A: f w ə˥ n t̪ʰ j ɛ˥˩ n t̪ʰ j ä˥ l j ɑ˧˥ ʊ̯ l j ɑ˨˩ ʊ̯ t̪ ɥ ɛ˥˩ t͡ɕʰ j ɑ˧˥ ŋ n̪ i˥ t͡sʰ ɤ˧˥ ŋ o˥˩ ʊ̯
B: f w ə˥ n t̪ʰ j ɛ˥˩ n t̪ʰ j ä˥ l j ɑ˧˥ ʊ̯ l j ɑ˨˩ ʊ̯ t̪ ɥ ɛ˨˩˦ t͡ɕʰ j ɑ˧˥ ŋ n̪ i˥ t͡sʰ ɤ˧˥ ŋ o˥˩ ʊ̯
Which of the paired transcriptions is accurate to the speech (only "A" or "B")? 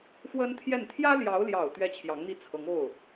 A